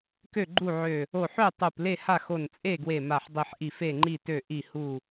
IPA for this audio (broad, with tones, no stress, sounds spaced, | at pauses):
k ø˥˨ ɡ͡ǃ u˥˨ ʕ ø˧˩ | o˧˩ ħ ø˥˨ tˤ u˧˩ p l e˥˨ h a˥˨ x o˧˩ n t͡sʼ e˥˨ ɡ w e˧˩ m a˧˩ ħ dˤ i˧˩ ħ ʔ i˧˩ f e˥˨ ŋ͡ǃ i˥˨ t ø˥˨ ʔ i˧˩ h u˧˩